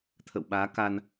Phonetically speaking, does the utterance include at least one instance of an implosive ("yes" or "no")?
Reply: yes